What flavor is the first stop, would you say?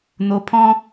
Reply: aspirated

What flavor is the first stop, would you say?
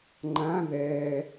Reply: click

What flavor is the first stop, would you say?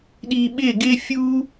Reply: implosive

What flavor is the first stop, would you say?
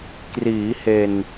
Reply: plain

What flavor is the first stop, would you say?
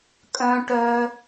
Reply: ejective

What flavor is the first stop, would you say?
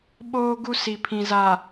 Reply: implosive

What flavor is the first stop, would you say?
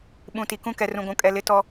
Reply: implosive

